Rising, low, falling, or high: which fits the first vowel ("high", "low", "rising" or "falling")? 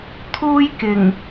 high